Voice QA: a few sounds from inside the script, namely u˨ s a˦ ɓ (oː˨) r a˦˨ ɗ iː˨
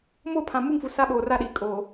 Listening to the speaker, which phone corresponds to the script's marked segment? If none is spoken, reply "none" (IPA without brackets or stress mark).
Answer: oː˨